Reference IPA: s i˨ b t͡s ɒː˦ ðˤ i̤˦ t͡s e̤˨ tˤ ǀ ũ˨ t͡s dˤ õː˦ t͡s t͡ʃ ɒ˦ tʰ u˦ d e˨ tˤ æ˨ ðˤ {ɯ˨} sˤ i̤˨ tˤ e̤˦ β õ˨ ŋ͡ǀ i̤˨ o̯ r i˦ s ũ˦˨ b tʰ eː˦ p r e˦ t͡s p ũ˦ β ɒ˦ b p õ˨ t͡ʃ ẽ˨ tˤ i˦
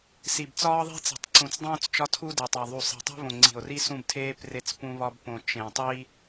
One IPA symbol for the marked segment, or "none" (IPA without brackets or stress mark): u˨